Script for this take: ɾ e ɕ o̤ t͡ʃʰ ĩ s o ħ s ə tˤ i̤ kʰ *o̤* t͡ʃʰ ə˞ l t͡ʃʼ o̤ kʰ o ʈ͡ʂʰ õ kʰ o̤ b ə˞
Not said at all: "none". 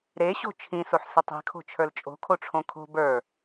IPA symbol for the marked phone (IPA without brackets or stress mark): o̤